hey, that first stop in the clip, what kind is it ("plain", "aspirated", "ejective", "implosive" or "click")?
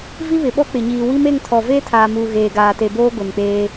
implosive